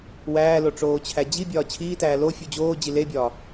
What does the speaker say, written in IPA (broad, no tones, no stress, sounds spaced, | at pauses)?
w æː l o ʈ͡ʂ oː t͡ɕʰ æ d͡ʑ i bʲ ɒː t͡ɕʰ iː t æː l o fʲ u d͡ʑ oː d͡ʑ i l e bʲ ɒː